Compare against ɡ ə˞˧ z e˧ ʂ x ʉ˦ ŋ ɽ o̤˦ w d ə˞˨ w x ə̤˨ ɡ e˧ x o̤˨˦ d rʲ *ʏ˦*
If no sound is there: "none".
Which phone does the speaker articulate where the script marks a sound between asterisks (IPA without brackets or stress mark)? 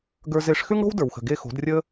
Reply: ə˦